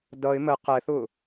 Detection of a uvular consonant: present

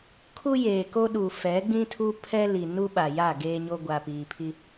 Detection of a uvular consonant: absent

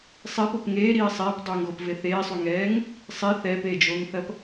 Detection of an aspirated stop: absent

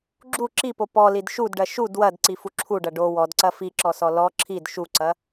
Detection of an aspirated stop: present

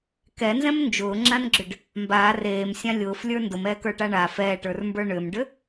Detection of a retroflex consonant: present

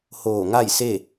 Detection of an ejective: absent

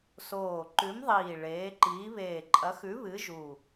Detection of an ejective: present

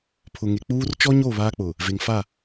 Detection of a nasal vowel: absent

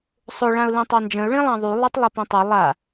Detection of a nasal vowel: present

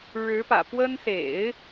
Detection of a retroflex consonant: present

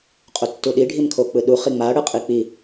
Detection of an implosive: present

